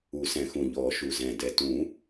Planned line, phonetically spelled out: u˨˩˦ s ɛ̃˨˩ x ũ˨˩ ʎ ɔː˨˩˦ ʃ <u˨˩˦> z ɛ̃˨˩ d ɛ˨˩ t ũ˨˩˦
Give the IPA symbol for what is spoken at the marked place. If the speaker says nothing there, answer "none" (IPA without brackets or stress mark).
u˨˩